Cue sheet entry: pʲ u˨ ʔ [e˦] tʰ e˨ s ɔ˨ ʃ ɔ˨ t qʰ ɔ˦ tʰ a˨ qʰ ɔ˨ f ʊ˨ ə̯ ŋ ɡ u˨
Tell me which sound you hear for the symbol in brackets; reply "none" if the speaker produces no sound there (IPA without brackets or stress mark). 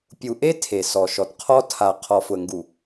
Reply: e˦